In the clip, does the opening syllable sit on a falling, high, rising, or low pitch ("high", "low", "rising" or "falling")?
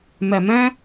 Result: low